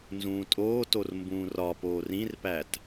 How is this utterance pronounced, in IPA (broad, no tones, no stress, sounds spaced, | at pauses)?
n z ũː tʼ oː t o r m b ũː r ɒ p oː r ĩ r p æ t